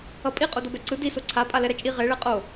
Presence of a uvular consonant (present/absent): present